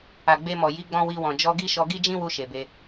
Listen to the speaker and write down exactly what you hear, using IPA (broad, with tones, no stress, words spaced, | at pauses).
a˨ɡ͡be˧mɔ˨ ji˨˦ɡ͡bɔ̃˧ wi˧wɔ̃˨ d͡ʒɔ˧ɡi˦ʃɔ˧ ɡi˦d͡ʒĩ˦wu˧ ʃe˨ be˧